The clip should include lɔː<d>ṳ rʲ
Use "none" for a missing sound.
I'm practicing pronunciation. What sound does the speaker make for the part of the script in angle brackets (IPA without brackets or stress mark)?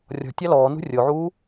n